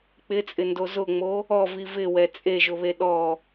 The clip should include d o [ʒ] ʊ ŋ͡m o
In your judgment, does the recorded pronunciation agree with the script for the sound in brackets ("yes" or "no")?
no